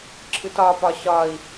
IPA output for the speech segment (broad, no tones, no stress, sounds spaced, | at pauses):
ǁʰ ɯ t ɒ p ɒ ɕ ɒ i̯